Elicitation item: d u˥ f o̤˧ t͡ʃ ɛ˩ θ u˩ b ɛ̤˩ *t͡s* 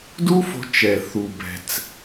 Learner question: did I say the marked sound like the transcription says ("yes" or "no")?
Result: yes